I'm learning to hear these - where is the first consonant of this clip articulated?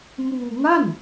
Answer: lips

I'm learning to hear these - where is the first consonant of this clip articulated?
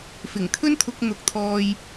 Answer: lips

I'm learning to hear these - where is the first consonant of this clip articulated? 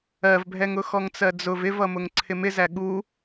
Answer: lips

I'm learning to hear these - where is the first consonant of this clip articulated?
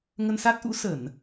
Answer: velum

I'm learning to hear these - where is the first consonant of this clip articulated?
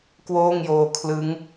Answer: velum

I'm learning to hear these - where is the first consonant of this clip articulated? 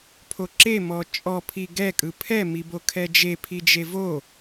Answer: lips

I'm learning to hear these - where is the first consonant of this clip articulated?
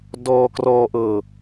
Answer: tongue tip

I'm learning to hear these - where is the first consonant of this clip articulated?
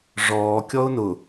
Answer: retroflex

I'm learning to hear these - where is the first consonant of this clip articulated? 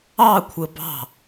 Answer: velum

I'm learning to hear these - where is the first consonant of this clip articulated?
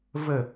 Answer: lips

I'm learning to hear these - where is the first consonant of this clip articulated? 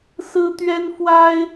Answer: tongue tip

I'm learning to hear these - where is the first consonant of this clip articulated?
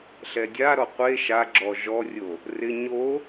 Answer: tongue tip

